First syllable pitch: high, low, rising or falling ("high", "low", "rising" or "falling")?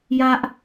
high